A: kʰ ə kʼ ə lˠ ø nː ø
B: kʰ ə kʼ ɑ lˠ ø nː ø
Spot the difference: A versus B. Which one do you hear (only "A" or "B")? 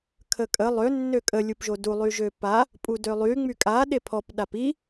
A